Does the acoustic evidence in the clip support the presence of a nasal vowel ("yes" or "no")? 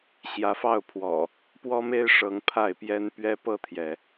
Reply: no